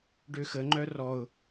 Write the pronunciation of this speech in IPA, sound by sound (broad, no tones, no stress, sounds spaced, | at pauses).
ɖ ø x ə ŋ͡ǃ œ r ɔ ʊ̯